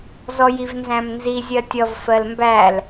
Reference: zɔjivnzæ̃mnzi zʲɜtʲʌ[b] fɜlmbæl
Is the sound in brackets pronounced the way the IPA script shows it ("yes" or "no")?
no